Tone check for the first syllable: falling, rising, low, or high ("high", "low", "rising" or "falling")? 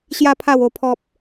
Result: high